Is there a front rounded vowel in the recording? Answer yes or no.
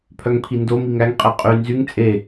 yes